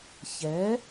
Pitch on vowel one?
rising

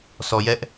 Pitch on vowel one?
low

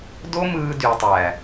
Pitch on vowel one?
high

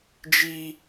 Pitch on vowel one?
high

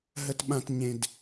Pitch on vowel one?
low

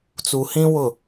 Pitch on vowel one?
low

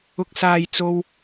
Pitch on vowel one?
low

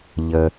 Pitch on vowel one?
low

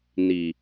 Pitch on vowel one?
low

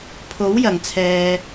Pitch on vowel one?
rising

